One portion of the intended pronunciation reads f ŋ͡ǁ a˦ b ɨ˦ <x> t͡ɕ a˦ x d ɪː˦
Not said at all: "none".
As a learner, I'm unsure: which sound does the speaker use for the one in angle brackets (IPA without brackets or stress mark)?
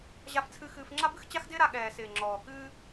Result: x